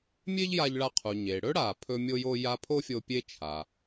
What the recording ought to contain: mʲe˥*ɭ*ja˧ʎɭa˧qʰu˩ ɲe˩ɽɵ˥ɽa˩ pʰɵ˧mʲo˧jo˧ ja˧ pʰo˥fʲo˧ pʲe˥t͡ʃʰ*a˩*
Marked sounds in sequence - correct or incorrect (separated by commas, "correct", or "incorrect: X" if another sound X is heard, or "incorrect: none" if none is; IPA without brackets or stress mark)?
incorrect: ʎ, correct